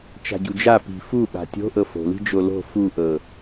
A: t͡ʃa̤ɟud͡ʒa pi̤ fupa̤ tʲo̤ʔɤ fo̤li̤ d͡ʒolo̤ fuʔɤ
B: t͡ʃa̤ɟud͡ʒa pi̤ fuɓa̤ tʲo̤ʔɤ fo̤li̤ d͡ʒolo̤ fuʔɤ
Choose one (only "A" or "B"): B